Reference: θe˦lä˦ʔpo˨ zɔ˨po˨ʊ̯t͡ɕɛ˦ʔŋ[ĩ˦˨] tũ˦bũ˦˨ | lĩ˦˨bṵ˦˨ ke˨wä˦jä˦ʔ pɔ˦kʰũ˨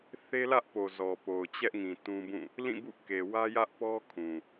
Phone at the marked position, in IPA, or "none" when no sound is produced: ĩ˨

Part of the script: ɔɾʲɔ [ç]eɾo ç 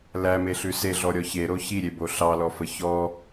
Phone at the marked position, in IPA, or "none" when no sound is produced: ç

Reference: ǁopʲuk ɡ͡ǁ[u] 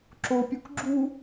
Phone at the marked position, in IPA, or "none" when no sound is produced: u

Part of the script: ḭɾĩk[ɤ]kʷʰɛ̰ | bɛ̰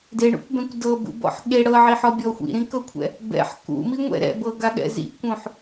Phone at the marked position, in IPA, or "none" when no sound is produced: ɤ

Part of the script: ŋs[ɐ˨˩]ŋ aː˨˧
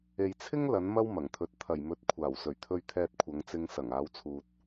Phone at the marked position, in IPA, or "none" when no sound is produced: ɐ˨˩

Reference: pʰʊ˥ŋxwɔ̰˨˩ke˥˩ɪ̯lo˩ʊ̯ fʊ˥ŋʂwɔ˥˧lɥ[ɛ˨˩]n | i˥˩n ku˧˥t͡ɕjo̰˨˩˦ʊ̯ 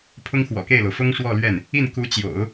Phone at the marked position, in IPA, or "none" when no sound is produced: ɛ˥˩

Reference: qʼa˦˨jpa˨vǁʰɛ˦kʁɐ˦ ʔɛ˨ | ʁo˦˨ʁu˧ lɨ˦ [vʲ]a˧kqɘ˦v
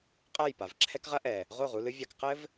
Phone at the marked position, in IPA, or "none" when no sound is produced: vʲ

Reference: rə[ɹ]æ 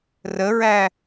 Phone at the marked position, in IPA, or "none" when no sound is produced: ɹ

